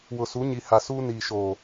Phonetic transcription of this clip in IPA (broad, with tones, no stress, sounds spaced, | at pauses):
w ʊ˨ s u˨˦ ɲ i˨ h a˨ s uː˦ n iː˨ ʃ oː˨